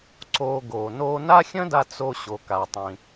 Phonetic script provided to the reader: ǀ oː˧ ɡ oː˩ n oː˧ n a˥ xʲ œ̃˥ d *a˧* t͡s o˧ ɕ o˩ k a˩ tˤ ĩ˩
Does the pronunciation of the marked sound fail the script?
no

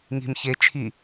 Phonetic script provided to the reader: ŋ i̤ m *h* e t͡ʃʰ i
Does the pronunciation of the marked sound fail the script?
yes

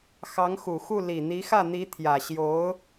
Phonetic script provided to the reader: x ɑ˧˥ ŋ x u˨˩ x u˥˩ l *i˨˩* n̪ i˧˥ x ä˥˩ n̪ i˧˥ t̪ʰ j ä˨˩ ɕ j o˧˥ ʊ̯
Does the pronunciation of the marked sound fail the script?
no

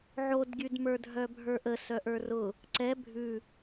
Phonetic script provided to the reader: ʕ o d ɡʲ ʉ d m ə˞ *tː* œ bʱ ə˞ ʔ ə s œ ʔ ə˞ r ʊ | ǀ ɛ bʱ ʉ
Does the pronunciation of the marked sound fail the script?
yes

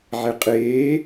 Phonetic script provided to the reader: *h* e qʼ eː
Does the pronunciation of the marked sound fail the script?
yes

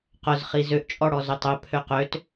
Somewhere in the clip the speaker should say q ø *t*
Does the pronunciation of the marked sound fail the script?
no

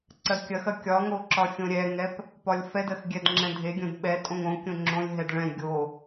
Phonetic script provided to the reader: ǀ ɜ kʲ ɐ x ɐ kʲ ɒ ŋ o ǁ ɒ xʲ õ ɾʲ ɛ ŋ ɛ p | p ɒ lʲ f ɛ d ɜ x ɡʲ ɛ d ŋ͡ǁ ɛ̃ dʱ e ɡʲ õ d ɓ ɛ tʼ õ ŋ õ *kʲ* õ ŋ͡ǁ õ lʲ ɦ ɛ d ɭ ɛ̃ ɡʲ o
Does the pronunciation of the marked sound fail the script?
no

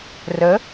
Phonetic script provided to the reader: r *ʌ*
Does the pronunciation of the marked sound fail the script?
yes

